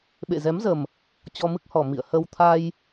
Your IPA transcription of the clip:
ɓḛ˧˨zɛ˨˦m zə˨˩m | t͡ɕɔ˧mɨ˦˥k̚hɔ˨˩ mḭ˧˨ə̯ hə˧wt̪ʰa˧j

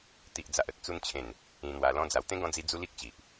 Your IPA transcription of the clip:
t̪i˨ʔd͡za˨ʔ ə˨t̚t͡su˧nt͡ɕʰẽ˨˩n | ĩ˧n̪wa˧lɔ̃˦d͡za˧w t̪ẽ˦ɡɔ̃˧d͡zi˧ d͡zu˦li˦k̚t͡ɕi˨ʔ

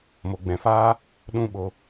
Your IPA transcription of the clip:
mo˨ɡ͡bɛ̃˨faː˦ | ɗũ˦ɓo˧

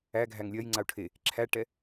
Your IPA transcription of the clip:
æ ɡʱæŋlʲɜj ŋ͡ǀau̯ʈʰe | ǁʰæʈɛ

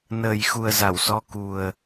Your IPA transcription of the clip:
nəː˨˩jxu˨˩ə̯ za˧˩wsɔ˨˦ ku˨˩ə̯

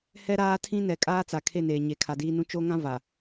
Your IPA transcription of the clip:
hɛ˦ɾaː˦tʰĩ˦ nɛ˨ kʼaː˦t͡sa˨kʰe˦˨neː˨ ɲe˨ kʰa˨diː˦nũ˦ t͡ʃo˦ŋã˦ va˨

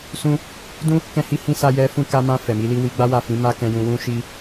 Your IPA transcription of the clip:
sũ˦ | dũ˦ | kɛ̃˦hi˦hĩ˦ sa˧jɛ˧ fũ˧ka˧mã˧ fɛ˨mi˨˦li˦ wi˧ɡ͡ba˦wa˦˨fĩ˨˦ ma˦ kɛ̃˧jũ˧wũ˦ ʃi˦

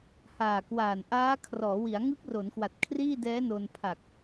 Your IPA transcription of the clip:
haː˨˩kwaː˨˩nʔaː˦˥ kʰrɔː˩˦wi˩˦a̯ ŋɯ˦˥k̚ro˩˦nkwa˨˩t̚ kʰriː˥˩dɛː˦˥no˧n pʰa˨˩k̚

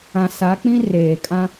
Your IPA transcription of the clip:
ã˨ sa˨˦k͡pĩ˦ reː˨ kʼã˦

